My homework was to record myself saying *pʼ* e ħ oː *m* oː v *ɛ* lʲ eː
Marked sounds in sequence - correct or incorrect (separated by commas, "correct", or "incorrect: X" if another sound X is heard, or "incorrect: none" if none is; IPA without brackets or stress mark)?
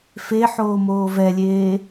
incorrect: f, correct, correct